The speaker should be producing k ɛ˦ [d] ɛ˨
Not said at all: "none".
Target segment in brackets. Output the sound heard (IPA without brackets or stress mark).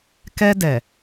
d